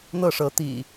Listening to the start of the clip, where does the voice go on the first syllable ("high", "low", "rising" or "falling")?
falling